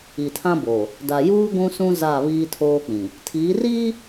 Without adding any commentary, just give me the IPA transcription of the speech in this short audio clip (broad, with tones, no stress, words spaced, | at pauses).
i˨tʰã˦bo˨ | da˨juː˦ ɡʷũ˦sũ˦ za˦˨ βiː˦tʰoː˦k͡pĩ˨ | tʰiː˨˦riː˦